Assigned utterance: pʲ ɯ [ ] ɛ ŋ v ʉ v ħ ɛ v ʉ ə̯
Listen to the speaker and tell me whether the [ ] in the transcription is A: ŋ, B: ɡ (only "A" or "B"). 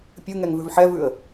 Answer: A